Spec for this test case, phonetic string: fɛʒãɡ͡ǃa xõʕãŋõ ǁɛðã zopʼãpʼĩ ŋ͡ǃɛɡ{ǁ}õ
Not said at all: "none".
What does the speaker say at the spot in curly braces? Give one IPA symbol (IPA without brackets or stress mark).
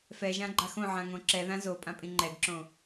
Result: ǁ